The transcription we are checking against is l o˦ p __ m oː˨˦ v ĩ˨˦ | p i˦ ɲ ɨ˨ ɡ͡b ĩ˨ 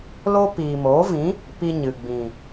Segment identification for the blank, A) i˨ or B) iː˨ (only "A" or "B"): B